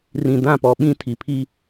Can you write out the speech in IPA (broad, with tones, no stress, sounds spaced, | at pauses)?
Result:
r ĩ˨ d ã˦˨ p ɔ˨ ɓ ĩ˦ tʰ i˨ pʰ i˦